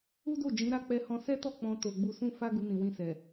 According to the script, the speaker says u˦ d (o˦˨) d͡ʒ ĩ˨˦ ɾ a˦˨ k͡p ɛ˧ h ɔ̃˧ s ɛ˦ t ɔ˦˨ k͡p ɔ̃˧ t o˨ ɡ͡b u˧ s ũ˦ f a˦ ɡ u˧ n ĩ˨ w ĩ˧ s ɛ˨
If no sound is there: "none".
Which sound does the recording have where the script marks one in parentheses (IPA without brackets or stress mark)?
o˦˨